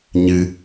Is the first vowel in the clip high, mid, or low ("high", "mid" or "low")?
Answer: high